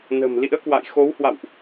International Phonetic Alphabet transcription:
n ə̤˨˩ m l ḭ˧˥ ə̯ k w a̰˧˨ j x o˨˦ w h w a̰˧˨ w ʔ

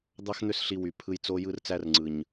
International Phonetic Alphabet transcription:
d̪ ɑ˦ x n̪ ø˦ s ɬ i˧ w y˨ pʰ ɯ˧ j t͡s o˧ j ɯ˦ r t͡s æ˦ r ŋ͡ǀ ɯ˨ ɲ

